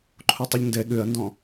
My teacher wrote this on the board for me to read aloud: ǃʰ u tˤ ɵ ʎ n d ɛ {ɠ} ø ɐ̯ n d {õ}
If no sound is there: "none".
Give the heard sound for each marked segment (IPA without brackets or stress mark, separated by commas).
ɠ, ɔ̃